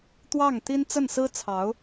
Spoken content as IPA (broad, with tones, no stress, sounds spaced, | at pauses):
t̪ w ɑ˥˩ ŋ t̪ i˥ n t͡s ə˥˩ n s ɹ̩˥ t͡sʰ ɑ˧˥ ʊ̯